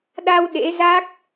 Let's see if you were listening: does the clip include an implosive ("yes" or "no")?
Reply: yes